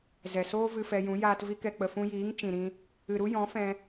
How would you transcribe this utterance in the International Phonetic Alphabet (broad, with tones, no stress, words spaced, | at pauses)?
zɛ˨soː˦ vɨ˧fɛ˧jũ˨˦ jaː˧t vi˧kɛ˨k͡pə˨ fũ˧jiː˨˦ŋ t͡ʃĩ˨ɾĩ˧ | ɨ˨ ɾu˦jɔ̃˨˦ fɛ̃˧